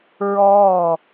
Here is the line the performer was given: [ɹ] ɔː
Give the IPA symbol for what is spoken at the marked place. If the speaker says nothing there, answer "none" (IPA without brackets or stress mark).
ɹ